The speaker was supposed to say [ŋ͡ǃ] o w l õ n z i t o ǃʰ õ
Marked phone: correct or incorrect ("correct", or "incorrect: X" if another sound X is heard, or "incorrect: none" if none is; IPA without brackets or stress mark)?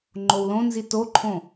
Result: correct